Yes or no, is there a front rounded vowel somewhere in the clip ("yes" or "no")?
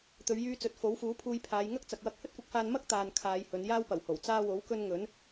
yes